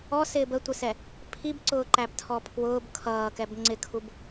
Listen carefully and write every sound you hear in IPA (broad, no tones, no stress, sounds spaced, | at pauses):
ɔ s ɪː b ə tʷ ɪ s ɛ | pʰ i b ǀ ʊː ǃ æ b tʰ ɔ pʰ w ʊː b kʰ ʌː k ɛ b ŋ͡ǀ ɪ kʰ u b